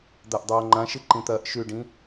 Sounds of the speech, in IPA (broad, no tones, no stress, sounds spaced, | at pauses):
d̪ a ʔ dˤ oː ŋ͡ǃ ã ʃ ɨ ǃ ĩ t̪ ɐː ʔ ʃ ʉ ɖ ĩ